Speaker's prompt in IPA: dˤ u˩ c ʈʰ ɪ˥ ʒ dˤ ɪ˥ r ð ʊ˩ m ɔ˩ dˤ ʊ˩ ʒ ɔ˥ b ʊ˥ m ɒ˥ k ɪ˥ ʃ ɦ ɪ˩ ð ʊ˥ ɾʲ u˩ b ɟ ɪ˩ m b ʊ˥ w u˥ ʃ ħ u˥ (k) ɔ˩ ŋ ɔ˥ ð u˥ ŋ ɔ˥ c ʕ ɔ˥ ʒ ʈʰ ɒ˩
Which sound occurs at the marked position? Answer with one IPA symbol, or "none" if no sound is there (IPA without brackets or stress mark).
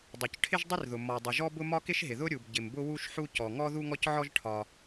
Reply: c